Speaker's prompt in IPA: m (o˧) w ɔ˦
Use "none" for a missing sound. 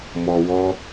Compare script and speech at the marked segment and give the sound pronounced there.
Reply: ɔ˧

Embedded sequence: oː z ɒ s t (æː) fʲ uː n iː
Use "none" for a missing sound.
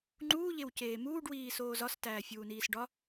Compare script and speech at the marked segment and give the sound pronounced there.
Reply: æː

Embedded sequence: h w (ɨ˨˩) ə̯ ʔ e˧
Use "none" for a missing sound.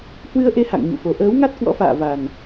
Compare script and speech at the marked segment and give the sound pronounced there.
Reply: ɨ˧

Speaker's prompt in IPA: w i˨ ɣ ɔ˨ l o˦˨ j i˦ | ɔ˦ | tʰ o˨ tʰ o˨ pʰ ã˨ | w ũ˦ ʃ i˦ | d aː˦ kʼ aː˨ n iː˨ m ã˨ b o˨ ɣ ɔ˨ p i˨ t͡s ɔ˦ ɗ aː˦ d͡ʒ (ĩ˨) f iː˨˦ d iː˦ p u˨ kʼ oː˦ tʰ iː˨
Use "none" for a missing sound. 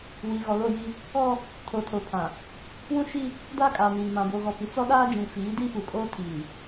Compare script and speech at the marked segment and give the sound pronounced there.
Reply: ĩ˨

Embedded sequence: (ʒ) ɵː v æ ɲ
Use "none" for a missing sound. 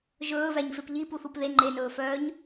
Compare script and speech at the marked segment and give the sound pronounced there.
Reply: ʒ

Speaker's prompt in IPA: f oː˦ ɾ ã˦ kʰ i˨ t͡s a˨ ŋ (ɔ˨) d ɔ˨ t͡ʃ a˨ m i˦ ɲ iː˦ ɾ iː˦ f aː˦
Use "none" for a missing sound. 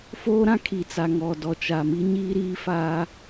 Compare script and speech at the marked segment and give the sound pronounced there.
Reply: ɔ˨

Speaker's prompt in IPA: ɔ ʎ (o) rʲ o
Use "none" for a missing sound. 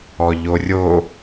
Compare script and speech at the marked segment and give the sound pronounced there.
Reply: o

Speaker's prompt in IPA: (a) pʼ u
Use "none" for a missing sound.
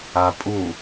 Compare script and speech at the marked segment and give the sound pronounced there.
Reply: a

